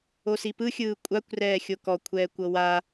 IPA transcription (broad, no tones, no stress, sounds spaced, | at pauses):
o s i p ɯ xʲ ɯː kʷʼ a kʷ r ɛː xʲ o k ɔ kʷʰ ɛː kʷ ɤ w a